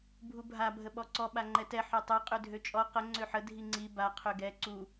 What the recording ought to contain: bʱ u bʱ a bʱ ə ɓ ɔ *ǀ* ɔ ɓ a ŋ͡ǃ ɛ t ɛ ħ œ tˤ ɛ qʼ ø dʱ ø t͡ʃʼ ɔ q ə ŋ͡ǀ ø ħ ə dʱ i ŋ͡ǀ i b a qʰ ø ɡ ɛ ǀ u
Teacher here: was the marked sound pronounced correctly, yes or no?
yes